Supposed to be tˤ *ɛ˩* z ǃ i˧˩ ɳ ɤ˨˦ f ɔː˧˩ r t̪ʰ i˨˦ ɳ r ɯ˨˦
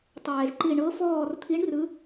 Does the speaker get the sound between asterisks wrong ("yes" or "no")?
yes